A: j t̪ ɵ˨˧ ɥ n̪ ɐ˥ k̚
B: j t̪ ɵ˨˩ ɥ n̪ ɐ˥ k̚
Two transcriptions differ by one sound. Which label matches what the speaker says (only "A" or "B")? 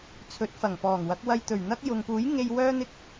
B